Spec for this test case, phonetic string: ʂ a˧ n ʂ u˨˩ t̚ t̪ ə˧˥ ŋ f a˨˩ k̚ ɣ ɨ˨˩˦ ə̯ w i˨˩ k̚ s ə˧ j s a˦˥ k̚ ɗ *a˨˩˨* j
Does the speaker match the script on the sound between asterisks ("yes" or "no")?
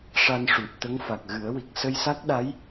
no